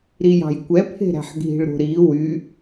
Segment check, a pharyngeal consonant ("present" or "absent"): present